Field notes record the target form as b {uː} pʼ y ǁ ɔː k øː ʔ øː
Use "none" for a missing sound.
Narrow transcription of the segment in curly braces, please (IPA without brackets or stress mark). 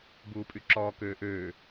uː